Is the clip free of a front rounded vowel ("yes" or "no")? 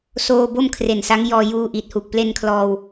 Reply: yes